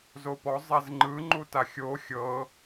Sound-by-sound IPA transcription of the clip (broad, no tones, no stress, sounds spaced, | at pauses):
z o p ɔ zˤ ɛ z ŋ͡ǃ ɯ ŋ͡ǃ u t a xʲ o xʲ ɤ